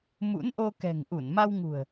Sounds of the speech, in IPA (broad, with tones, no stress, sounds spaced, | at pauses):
m ṵ˧˥ n ʔ o˧ k ɛ̤˨˩ ŋ ʔ u˧˩ n m a˧ w ŋ ṳ˨˩ ə̯